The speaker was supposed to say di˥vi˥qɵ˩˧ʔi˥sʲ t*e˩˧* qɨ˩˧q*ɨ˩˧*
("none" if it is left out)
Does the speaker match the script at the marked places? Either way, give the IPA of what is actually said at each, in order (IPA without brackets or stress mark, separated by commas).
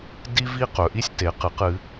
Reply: e˩˧, ɨ˩˧